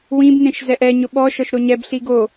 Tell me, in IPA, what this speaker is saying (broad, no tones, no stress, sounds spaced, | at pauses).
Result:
w ĩ b n ẽ ʃ z ɛ ʔ ɛ ɲ ʊ ɓ ɔ ʃ ɔ ʃ ɾ o ɲ ɛ b ɬ i ɡ o